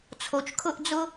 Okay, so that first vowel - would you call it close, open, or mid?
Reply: mid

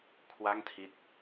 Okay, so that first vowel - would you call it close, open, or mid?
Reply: open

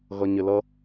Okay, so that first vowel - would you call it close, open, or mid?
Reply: mid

